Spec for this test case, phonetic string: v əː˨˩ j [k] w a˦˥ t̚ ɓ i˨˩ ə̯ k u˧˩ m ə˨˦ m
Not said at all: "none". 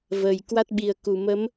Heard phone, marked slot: k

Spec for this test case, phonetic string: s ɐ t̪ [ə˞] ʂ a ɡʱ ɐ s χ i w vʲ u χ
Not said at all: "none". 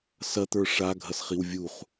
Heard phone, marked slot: ə˞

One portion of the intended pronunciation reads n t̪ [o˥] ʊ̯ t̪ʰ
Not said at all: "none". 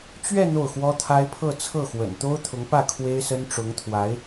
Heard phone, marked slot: o˥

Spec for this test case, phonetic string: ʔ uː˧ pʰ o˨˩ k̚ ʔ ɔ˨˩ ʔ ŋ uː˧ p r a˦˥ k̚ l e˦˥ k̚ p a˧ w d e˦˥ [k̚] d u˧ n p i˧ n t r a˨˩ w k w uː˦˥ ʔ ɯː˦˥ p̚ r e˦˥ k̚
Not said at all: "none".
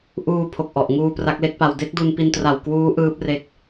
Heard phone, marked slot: k̚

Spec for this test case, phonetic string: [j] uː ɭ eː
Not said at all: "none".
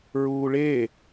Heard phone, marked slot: ɹ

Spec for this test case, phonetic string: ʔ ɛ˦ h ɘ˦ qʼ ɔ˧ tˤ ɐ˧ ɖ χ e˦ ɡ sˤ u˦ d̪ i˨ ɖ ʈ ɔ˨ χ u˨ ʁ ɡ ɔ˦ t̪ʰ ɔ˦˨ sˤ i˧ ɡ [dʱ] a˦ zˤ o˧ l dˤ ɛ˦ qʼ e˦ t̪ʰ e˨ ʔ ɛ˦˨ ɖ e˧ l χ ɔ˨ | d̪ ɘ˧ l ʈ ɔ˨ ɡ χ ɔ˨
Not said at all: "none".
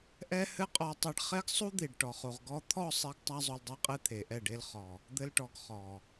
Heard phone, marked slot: tˤ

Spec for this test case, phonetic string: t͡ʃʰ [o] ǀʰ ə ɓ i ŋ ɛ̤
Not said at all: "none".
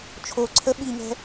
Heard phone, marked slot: o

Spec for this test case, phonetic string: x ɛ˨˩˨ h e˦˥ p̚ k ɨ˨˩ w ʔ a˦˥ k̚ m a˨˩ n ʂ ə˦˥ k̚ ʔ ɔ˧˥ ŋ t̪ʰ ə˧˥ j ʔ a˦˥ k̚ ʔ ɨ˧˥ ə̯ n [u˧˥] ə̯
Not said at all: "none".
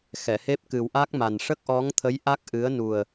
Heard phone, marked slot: u˨˩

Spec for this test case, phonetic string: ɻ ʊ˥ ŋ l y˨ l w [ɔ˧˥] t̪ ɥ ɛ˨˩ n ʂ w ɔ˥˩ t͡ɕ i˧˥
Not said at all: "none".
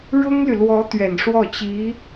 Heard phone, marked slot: ɔ˧˥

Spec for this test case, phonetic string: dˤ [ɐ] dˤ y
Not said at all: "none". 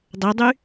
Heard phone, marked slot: ɐ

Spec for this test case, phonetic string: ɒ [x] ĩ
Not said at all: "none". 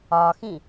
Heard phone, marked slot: x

